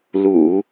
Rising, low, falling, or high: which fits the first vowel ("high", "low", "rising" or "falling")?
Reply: low